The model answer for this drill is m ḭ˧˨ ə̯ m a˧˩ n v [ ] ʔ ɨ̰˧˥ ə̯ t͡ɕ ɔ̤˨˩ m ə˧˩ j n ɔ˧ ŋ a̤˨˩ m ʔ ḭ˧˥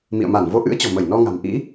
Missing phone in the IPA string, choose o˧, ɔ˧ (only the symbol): o˧